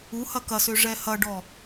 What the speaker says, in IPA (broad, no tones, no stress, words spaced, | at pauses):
uhɐ kɐsø ʐɛhɐɖɔ